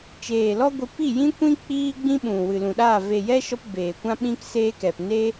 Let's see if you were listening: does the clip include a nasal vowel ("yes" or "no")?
yes